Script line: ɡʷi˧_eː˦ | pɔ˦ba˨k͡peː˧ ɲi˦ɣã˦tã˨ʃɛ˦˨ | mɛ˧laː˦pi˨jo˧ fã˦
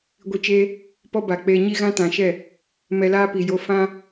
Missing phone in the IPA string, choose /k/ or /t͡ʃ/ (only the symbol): t͡ʃ